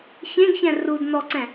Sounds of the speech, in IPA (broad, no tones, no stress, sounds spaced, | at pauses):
ç ẽ ɡ ç ɛ̃ r u d n ɔ ǀ ɛ̃